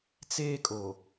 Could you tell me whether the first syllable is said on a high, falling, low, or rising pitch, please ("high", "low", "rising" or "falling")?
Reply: high